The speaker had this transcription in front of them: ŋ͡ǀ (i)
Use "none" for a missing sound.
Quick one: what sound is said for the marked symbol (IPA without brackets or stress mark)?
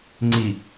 i